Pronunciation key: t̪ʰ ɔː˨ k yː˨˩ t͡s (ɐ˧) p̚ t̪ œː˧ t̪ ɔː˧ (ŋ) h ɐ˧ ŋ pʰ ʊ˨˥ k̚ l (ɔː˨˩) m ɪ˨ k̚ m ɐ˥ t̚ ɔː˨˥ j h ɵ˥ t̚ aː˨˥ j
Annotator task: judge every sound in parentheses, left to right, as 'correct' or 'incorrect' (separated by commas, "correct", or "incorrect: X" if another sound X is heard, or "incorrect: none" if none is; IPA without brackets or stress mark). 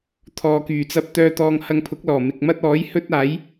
correct, correct, correct